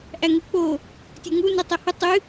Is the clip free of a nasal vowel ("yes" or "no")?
yes